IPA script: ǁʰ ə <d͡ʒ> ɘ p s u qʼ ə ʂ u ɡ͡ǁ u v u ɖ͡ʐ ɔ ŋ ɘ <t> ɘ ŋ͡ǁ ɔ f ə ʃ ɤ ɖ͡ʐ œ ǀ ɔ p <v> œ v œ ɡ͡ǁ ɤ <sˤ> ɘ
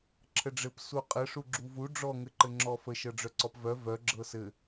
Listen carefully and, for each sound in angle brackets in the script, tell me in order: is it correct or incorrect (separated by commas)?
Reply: incorrect, incorrect, correct, incorrect